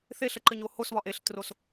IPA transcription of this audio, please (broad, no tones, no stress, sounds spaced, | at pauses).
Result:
θ e ɬ ə ǃ ɘ ɲ o h o s β ɒ ʔ e ɬ t r o s